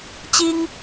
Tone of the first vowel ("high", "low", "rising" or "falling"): high